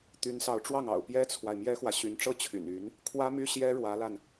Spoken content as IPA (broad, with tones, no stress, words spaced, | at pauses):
t̪y˧˥nsɑ˧˥ʊ̯ʈ͡ʂwɑ˥˩ŋɑ̰˨˩ʊ̯ pjɛ˥t͡sʰwa˨ɪ̯ mjɛ˥xwä˨ɕy˧˥n ʈ͡ʂɤ˥t͡ɕʰy̰˨˩ny˧˥n | kʰwä˥my˥ ɕjɛ˥ɻwä˧˥la˧n